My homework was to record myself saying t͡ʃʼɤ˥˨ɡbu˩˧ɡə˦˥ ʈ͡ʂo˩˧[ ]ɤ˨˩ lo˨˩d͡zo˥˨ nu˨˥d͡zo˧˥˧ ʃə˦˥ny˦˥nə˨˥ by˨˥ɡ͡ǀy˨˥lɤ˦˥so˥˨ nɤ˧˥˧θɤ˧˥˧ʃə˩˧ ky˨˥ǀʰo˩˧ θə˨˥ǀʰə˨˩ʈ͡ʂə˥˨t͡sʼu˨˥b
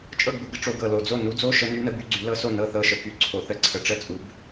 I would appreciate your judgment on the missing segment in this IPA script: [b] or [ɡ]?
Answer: ɡ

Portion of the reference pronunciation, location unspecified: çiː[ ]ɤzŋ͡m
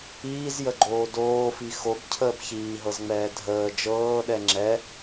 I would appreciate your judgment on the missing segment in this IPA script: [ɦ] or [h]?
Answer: ɦ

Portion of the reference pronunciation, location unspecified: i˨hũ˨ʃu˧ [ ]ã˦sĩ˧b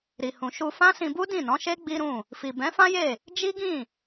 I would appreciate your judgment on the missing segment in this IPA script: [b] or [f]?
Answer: f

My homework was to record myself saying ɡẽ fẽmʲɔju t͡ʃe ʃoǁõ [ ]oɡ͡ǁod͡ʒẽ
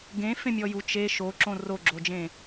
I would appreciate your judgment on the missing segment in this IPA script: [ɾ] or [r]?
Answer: r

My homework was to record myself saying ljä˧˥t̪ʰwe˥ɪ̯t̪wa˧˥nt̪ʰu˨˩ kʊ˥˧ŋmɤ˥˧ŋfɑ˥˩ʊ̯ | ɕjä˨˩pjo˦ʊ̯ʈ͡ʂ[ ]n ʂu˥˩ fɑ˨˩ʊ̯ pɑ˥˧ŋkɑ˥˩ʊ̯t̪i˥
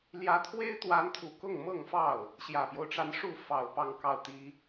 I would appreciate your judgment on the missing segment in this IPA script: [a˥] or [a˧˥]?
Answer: a˧˥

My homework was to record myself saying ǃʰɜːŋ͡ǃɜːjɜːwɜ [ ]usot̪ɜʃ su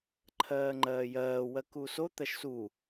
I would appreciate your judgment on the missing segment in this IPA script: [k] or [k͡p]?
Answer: k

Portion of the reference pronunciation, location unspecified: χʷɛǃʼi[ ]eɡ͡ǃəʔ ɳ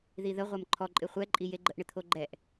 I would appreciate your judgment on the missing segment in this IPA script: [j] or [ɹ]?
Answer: j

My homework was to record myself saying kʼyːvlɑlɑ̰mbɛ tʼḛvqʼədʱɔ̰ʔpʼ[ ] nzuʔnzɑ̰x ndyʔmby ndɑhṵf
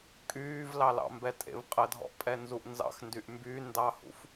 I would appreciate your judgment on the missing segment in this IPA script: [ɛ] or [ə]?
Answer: ɛ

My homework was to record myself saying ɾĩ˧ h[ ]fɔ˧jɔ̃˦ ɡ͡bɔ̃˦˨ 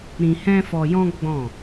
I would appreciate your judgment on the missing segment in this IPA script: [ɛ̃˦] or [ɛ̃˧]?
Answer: ɛ̃˦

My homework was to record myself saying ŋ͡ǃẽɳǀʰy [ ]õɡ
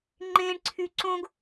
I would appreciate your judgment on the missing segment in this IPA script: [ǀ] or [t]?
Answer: ǀ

